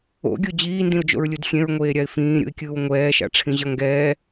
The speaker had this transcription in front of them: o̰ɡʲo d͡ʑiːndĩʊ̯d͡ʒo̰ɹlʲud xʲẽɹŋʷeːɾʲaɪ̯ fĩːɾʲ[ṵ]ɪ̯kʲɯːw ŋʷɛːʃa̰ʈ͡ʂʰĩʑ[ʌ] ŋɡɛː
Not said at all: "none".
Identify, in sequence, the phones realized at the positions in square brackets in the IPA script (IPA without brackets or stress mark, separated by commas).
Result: ṵ, ʌ